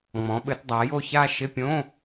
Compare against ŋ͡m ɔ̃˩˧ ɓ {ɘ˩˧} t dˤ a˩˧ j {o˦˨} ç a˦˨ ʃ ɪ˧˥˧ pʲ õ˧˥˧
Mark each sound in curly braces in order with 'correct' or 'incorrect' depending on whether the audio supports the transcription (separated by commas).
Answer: correct, correct